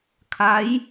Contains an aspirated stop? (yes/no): yes